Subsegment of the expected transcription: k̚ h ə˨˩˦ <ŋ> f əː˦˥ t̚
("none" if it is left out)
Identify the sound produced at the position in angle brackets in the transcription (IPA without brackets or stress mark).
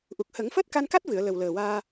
ŋ